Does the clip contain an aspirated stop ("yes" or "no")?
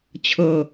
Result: yes